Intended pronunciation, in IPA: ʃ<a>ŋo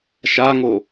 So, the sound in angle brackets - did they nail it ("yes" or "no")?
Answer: yes